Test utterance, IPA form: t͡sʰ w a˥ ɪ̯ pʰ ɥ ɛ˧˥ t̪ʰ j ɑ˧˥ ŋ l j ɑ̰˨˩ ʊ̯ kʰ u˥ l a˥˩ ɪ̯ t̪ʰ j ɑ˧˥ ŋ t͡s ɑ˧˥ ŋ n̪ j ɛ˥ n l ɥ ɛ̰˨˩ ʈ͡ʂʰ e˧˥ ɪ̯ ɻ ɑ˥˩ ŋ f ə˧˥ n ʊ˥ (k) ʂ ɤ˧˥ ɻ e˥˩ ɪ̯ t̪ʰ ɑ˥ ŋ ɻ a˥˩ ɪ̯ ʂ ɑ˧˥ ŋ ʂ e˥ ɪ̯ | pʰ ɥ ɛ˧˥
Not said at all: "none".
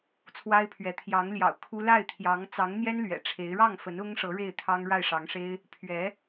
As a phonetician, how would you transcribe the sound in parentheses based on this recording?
ŋ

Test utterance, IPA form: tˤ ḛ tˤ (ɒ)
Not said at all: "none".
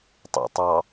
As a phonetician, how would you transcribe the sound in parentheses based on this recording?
ɑ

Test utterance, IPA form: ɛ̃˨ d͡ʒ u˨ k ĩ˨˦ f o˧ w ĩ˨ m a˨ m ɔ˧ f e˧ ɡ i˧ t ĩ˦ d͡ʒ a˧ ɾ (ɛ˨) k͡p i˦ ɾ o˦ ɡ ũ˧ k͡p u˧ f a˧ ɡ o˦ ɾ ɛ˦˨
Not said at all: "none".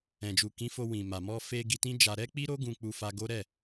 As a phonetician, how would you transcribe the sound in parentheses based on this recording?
ɛ˦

